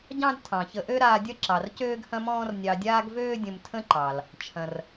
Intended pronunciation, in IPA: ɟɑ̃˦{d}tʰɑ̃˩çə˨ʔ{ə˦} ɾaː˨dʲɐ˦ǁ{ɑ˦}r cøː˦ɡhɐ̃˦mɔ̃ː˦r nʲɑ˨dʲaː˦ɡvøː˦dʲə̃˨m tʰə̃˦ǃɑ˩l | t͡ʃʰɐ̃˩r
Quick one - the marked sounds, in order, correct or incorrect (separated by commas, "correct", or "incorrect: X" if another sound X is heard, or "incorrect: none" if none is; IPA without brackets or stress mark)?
correct, incorrect: ø˦, incorrect: ɑ˩